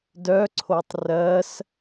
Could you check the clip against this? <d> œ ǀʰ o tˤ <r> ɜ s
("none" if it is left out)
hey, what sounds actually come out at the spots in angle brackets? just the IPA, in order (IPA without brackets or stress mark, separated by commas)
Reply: d, r